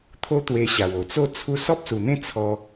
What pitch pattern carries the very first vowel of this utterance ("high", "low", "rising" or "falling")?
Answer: high